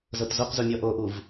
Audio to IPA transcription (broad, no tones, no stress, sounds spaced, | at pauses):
z ɤ t z o q z u mʲ ɔ ʔ o ʔ u v